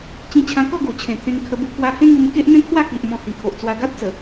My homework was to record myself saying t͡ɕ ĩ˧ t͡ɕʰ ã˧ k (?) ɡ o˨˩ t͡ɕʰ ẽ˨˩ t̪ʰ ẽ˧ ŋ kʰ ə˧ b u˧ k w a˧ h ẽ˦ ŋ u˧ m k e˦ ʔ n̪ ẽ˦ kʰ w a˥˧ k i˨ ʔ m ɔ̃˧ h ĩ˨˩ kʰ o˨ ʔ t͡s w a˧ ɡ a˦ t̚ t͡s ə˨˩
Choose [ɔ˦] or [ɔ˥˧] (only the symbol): ɔ˥˧